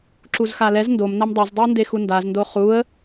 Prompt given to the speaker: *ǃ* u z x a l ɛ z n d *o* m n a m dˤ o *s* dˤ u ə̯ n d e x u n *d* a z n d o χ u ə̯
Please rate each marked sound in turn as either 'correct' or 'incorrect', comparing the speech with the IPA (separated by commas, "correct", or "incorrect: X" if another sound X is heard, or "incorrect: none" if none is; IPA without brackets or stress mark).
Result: incorrect: ǁ, correct, incorrect: z, correct